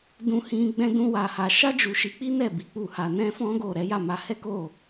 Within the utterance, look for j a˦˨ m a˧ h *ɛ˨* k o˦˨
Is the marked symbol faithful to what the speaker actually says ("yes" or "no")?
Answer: no